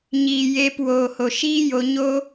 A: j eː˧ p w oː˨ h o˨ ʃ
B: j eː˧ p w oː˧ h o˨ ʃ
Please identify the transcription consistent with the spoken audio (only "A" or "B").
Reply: A